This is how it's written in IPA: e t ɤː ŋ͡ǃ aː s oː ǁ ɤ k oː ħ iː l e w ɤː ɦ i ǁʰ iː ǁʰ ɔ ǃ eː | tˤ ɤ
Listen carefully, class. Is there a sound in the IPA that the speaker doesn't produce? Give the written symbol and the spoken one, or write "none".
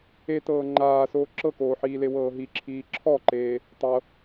none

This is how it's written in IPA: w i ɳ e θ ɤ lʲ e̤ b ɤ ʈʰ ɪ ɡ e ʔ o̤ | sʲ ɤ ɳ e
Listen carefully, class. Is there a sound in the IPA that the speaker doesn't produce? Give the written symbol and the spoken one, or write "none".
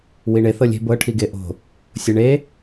ɪ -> i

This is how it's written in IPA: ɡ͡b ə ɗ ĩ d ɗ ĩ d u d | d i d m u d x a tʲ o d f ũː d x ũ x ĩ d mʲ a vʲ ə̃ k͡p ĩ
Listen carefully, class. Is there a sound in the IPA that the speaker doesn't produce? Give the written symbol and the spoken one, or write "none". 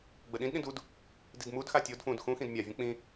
none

